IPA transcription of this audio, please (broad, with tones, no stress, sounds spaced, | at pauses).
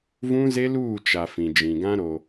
v ũ˦ z e˦ l uː˦˨ t͡ʃ a˨ f ĩ˨ d͡ʒ ĩ˨ ɡ ã˦ ɾ o˨